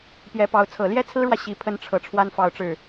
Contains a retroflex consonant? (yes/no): yes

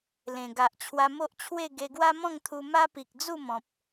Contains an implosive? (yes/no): no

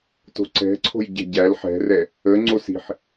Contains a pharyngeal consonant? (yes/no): yes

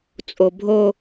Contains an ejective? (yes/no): yes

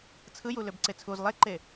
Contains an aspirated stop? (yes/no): yes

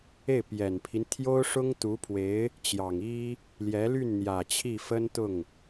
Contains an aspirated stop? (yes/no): yes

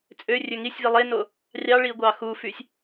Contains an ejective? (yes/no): yes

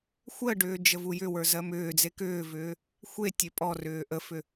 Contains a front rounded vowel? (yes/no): yes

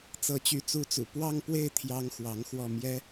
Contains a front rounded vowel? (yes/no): yes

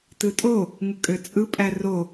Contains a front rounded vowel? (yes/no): yes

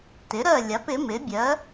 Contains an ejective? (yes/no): no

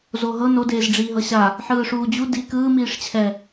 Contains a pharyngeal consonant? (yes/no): yes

